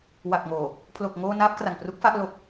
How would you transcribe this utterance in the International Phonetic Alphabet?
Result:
w a˨˩ k̚ ŋ oː˨˩ | pʰ l o˨˩ k̚ ŋ oː˧ n aː˦˥ p̚ k r a˨˩ ŋ p r u˦˥ k̚ f a˥˩ ʔ l o˨˩ k̚

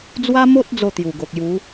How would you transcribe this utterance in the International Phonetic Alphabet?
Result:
d͡z w a˦ m o˦ t̚ d͡z o˥˧ t̪ j u˨˩ ɡ o˨ k̚ j u˨˦

